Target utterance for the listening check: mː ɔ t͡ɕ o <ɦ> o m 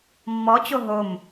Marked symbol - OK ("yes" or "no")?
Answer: yes